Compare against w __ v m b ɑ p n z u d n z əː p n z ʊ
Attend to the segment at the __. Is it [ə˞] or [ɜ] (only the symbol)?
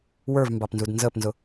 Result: ə˞